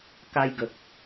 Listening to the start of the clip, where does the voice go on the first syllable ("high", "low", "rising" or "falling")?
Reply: high